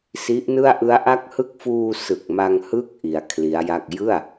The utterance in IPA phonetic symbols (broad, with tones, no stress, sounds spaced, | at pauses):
s i˦˥ ʔ n ɯ˥˩ a̯ ʔ ɯ˦˥ a̯ ʔ a˥˩ k̚ h ɯ˥˩ k̚ f uː˧ s ɯ˨˩ k̚ m a˧ ŋ h ɯ˥˩ k̚ ʔ i˧ a̯ kʰ l i˦˥ a̯ j a˥˩ k̚ j ɯ˥˩ a̯